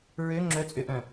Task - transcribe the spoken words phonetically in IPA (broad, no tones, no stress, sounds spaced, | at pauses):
ɹ ø ŋ͡ǁ œ t͡sʼ ø ʔ œ̃